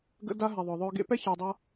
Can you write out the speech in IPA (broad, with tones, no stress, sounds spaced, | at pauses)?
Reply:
ɡ ə̰˦ d a˦ ɦ ɛ˨ ðˤ œ˨ ðˤ œ˧ ɡ ḛ˦ p ɛ˦ ç a˨ dˤ a˧